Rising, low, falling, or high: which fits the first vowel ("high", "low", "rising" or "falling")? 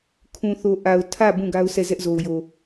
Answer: low